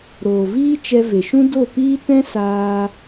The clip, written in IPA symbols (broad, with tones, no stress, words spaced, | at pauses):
ɾoː˨ viː˦t͡ʃɛ˧ ve˨ʃũ˦ do˦˨piː˦ tɛ̃˦ saː˧